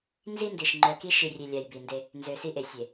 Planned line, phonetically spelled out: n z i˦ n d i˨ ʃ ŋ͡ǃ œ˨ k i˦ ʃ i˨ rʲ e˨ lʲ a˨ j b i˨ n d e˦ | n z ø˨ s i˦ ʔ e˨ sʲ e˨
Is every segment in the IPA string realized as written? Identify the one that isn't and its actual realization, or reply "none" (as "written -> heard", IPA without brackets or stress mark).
none